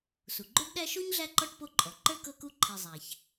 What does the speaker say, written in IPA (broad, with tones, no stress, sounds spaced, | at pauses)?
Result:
s u˩ ɡ͡ǃ o˥ ɖ ɗ æ˥ ʃ o˥ ɲ ɮ æ˦ ǃ ɔ˥ ʈ p o˦ ǃʼ ɔ˩ ǃ ə˞˥ k ɤ˦ k u˦ ǃʰ i˨ zˤ æ˩ ç